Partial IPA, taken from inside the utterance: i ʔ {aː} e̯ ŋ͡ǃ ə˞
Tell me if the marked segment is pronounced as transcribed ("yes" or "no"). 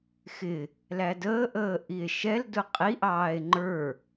no